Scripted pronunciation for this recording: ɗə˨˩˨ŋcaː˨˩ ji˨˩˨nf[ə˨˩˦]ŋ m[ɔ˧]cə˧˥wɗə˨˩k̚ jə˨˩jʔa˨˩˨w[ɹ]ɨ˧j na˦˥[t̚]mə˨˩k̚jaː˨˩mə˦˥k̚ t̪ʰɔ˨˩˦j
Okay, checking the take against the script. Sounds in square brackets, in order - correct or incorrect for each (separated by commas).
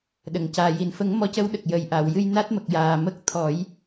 correct, correct, incorrect, correct